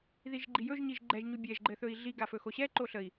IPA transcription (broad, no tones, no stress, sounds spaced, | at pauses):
ð i ʒ ɡ͡ǃ i j ɵ ʒ ɲ i ʒ ɡ͡ǃ ɛ ʒ ɲ u bʲ ɛ ʒ ɡ͡ǃ ɘ θ ɵ i̯ ɮ i ɡ a f ɵ x o ɕ ɛ ǃ o ɬ ə i̯